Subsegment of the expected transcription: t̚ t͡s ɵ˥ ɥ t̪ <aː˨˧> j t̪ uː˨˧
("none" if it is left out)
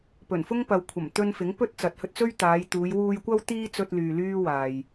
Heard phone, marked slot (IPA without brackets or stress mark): aː˨˧